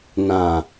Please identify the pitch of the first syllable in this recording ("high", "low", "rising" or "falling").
low